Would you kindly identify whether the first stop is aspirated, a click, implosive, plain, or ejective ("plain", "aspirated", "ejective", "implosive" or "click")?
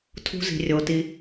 aspirated